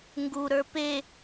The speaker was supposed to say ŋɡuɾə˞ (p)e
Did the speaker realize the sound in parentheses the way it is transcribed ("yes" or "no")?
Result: yes